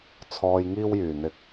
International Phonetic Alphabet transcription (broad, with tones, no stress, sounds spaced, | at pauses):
t͡sʰ ɔː˧ j ŋ iː˥ w j yː˨˩ n̪ ɪ˧ k̚